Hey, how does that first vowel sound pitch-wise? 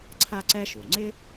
high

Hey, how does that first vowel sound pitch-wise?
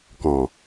low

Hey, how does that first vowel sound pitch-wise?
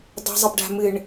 low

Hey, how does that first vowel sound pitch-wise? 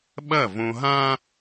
falling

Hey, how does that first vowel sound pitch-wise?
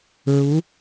rising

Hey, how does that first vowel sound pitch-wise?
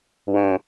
low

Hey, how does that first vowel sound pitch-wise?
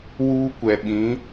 high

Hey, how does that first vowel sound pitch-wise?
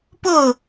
falling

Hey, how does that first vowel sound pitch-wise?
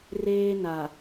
high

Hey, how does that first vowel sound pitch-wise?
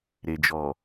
low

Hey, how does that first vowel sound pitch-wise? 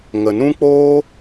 low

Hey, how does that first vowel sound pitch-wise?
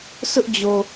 high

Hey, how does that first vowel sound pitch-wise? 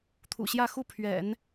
low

